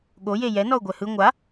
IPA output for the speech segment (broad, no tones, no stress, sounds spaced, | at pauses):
ɠ o j e j ɛ n ɔ ʊ̯ ɡʷ ɛ h ɯ ŋʷ a